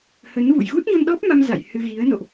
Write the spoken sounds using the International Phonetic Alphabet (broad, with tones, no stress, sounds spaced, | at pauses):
h ə˨˦ n v ṵ˧˨ j ɣ u˦˥ t̚ ɲ o˧ n ɗ ɔ˦˥ p̚ m a˧ m z a̰˧˨ j h ɨ˧ ɣ i˨˦ ə̯ n o̰˧˨ ʔ